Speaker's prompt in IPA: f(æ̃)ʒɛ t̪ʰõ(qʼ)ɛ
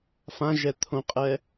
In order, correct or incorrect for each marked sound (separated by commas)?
incorrect, correct